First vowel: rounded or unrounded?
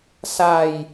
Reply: unrounded